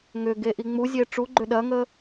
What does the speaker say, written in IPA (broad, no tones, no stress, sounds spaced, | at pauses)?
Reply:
ŋ ʏ ɡ e ʔ i ŋ͡m u zʲ e ʈ͡ʂ u ɡ͡ǃ ʏ ɗ ɐ ŋ ə